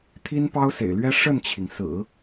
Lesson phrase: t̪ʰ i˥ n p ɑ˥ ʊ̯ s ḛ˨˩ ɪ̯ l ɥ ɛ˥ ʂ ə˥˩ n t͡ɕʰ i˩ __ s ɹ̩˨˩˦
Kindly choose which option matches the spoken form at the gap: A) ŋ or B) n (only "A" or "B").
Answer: A